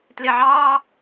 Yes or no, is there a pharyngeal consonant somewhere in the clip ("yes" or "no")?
yes